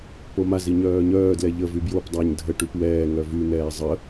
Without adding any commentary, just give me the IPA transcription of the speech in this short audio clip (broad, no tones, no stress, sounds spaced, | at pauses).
p o m a z i ɲ œː ɲ œː d l ɛ ʎ ə v y b j o p dˤ a ɲ dʱ ə ʈ y p w ɛː ŋ œ v y n̪ ɛː zˤ ə